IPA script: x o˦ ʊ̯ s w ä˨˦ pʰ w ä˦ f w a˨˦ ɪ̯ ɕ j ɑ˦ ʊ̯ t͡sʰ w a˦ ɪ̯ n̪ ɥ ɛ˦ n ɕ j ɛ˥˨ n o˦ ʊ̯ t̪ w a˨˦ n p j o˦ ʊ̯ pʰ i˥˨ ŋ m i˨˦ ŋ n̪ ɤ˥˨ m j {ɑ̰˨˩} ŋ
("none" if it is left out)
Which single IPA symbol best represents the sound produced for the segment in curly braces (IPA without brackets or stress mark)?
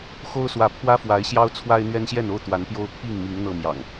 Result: ɑ̰˨˩